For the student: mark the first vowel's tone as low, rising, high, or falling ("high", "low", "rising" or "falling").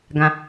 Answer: low